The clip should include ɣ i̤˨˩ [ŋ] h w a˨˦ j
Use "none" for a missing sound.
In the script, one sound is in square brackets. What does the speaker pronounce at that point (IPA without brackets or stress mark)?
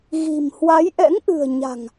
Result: m